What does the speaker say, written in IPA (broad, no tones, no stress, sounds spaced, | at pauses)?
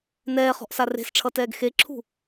n ɛː χ ɔ̤ ʔ s a r e̤ s ʈ͡ʂʰ ʌ t ɛː ɡ x e ǁʰ ṳ